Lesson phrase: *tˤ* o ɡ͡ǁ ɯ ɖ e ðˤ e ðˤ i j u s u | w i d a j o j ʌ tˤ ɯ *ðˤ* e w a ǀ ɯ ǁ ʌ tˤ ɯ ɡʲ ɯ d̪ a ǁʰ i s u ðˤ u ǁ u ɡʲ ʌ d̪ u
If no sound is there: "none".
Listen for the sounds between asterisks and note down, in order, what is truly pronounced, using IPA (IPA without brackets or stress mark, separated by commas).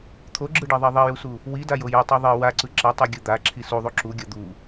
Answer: t̪ʰ, ðˤ